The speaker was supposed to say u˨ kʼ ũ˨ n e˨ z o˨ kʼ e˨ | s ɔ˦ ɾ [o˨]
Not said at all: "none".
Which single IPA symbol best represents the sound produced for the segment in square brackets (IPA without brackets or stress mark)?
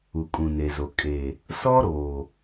o˨